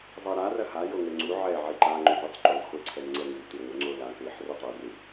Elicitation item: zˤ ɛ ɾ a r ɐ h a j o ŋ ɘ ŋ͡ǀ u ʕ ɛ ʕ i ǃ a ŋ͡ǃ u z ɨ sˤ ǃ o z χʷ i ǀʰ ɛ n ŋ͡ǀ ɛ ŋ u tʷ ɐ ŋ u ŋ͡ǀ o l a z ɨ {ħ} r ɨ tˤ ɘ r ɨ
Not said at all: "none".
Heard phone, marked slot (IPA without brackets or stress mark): ħ